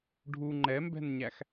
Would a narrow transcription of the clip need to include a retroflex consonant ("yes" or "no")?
yes